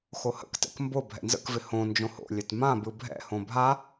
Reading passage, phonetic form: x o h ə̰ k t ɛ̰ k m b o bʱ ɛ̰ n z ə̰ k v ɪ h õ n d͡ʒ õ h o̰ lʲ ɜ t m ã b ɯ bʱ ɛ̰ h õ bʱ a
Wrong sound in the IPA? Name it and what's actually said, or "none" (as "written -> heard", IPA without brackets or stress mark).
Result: none